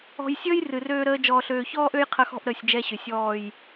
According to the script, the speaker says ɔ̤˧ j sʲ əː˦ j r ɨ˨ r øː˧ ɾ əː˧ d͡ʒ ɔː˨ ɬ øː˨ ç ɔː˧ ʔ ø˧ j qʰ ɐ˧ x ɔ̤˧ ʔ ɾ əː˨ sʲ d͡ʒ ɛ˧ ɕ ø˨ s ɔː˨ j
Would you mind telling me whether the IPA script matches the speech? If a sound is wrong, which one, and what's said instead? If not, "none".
s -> sʲ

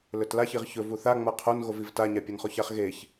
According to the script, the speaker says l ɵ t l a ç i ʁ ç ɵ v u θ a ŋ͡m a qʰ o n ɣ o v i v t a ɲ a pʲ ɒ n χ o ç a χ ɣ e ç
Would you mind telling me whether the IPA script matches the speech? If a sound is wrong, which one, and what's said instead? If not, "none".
none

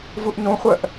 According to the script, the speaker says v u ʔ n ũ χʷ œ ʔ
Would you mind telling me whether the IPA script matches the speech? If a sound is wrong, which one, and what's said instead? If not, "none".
none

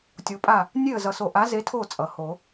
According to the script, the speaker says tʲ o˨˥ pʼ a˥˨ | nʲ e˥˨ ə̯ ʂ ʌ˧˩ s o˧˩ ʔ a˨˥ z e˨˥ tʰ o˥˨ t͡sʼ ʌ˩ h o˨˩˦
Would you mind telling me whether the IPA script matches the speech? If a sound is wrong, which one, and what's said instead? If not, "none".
ʂ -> z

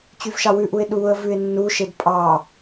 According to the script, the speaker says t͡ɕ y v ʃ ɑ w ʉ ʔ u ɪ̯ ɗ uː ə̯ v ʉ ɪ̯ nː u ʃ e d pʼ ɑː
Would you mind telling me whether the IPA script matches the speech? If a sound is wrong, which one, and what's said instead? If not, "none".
none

